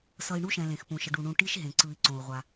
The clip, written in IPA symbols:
s ʌ˨ i̯ ɳ u˥ ʃ ɛ̃˩ l ẽ˩ x p ũ˩ ʃ ʌ˨ ɖ u˩ ɳ ũ˨ ʈ i˥ ʃ ɦ ẽ˩ ǀ ɯ˨ i̯ ǀ õ˩ u̯ ʁʷ a˩

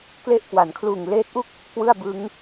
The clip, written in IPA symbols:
k l e˦˥ ʔ k w a˩˦ n kʰ l uː˨˩ ŋ l eː˦˥ t̚ ʔ u˥˩ k̚ | k w ɯ˥˩ a̯ b ɯ˦˥ ŋ

